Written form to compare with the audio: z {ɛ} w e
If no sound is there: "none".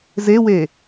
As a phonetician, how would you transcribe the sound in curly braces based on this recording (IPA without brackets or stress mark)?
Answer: e